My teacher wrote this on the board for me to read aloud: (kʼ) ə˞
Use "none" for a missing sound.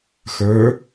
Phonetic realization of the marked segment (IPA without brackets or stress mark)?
x